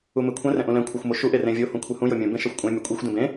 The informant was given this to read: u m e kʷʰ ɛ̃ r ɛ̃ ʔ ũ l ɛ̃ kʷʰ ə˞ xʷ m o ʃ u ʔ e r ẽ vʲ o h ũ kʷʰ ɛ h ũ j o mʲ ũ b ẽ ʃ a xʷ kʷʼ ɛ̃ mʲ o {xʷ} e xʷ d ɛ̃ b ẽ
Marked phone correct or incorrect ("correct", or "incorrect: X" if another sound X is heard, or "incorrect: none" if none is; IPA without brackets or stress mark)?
incorrect: kʷʼ